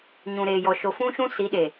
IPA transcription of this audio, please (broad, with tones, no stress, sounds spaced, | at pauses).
ɲ ũ˨ ɾ eː˨ j ɔ˨ ʃ o˨ f ũ˦ ʃ ũ˦ s i˨˦ ɗ eː˨